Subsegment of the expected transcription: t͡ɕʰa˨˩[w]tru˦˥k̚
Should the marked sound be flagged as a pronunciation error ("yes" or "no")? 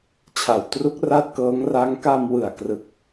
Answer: no